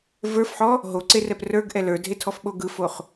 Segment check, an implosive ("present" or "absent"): present